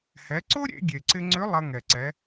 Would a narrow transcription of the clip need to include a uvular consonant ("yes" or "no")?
no